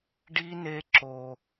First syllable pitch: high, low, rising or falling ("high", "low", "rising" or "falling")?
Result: high